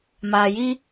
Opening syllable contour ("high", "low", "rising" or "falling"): low